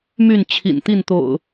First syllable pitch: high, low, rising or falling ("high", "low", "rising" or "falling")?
falling